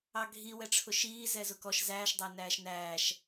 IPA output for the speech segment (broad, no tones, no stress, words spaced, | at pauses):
ɑɡʱi wɛʈ͡ʂʰʊʃiː zɛzʊkɔʃ zæːʃ dˤænæːʃnæːʃ